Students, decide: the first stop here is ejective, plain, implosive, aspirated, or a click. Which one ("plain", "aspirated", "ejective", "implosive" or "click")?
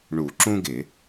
click